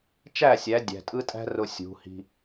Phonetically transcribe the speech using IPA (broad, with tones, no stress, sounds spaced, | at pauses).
t͡ʃ æ˦˨ sʲ æ˨˦ dʲ æ̤˨ tʼ ɯ˦ tʼ æ̤˦ r ʊ˨ sʲ ṳ˨˦ h i̤˦